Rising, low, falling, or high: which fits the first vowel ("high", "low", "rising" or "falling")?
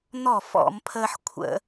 falling